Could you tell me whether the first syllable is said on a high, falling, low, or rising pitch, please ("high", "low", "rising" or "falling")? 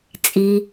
low